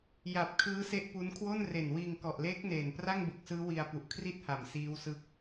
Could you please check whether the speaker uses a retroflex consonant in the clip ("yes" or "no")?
no